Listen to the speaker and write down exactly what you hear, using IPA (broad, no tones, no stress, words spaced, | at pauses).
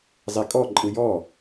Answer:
zˤikʼɔǃʼɯ jɔ